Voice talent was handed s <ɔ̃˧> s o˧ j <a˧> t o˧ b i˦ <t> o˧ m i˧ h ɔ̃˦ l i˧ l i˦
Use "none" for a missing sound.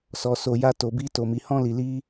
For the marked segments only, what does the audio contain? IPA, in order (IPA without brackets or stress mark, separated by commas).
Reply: ɔ˧, a˦, t